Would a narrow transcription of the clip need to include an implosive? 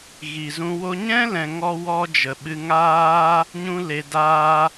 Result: yes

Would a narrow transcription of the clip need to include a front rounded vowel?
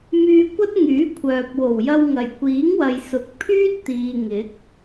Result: yes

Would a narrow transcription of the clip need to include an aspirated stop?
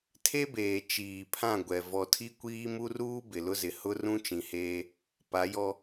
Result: yes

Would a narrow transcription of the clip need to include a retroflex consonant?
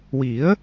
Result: no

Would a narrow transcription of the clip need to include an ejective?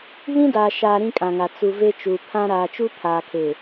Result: yes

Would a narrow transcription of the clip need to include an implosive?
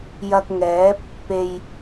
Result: no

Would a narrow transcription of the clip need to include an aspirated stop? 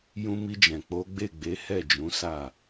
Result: no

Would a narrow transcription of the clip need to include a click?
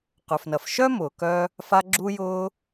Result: yes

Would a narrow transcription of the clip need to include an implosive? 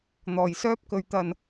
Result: no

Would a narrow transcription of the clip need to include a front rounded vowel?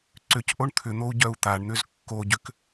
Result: yes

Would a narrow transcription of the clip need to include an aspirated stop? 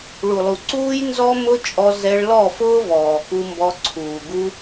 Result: yes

